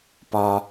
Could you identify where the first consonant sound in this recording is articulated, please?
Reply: labial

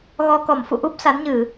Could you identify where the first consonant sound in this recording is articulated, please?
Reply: velar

